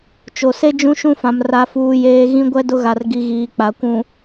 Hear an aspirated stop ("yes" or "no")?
no